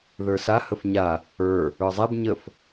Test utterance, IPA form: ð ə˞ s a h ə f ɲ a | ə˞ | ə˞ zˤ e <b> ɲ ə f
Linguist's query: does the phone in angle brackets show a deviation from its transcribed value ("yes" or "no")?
no